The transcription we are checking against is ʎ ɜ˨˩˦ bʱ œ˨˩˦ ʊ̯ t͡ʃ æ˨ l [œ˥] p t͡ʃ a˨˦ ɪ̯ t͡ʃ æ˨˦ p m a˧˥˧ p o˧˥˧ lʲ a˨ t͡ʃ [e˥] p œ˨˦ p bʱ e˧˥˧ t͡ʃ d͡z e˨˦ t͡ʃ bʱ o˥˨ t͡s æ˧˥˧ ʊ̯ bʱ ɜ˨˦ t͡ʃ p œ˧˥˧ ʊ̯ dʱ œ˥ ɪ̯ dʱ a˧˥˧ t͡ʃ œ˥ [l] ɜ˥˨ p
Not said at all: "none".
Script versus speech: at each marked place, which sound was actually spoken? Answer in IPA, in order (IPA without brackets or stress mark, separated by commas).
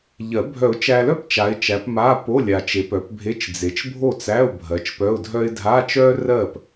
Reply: œ˥˨, e˨˦, r